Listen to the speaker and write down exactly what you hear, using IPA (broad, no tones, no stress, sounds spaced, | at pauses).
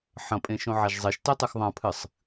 ħ ɐ̃ pʼ ẽ ʃ õ ʕ a ʒ zˤ e ʃ t e tˤ ɨ x ðˤ ã pʰ ɨ sˤ